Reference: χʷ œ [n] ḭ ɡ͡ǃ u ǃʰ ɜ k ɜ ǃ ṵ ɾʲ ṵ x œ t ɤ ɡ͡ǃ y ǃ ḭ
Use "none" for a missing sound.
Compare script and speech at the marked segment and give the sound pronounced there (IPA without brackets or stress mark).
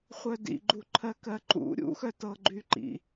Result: d